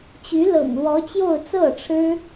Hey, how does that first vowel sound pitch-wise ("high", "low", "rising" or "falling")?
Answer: rising